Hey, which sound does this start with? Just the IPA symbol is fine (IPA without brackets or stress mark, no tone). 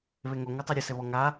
β